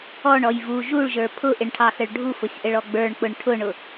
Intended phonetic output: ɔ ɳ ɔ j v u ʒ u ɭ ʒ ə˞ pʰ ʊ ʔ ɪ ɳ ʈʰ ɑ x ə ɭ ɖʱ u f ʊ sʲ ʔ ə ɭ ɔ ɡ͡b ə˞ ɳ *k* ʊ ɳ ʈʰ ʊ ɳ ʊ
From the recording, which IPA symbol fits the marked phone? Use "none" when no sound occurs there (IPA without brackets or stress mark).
k͡p